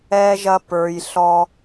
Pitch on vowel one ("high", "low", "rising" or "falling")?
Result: high